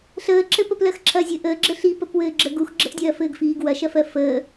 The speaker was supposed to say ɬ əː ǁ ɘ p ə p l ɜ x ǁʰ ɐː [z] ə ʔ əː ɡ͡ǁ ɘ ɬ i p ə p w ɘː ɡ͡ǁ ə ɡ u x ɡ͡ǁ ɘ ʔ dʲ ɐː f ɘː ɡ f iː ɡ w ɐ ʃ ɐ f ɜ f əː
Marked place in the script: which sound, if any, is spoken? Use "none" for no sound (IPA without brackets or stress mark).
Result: zʲ